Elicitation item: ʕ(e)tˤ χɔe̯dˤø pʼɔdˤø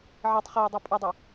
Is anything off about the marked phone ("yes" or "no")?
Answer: no